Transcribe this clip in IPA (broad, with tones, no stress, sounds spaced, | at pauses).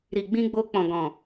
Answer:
ɾ i˨ ɡ͡b ĩ˧ ɡ͡b o˧ k͡p ɔ̃˨ ɡ ɔ̃˨